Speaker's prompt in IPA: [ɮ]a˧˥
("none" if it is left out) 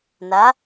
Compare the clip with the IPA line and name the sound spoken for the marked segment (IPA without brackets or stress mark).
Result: n